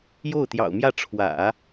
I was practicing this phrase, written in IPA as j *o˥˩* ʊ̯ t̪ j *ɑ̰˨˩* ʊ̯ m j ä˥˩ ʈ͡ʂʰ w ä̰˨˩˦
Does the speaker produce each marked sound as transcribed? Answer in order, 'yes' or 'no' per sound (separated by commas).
yes, yes